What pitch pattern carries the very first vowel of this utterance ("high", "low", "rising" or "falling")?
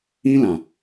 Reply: high